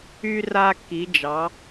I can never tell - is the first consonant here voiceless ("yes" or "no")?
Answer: no